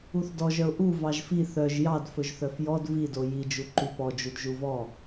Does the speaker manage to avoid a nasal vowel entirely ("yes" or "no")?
yes